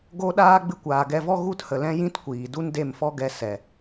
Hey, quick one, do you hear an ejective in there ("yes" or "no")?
no